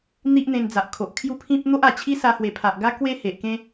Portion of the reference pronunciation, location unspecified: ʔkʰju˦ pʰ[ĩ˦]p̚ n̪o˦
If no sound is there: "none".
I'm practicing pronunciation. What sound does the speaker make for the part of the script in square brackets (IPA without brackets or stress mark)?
ĩ˦